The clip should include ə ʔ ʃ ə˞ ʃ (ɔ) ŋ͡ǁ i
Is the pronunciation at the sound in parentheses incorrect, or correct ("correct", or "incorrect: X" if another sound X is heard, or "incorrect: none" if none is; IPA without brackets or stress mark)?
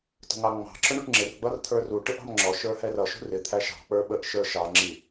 incorrect: ɑ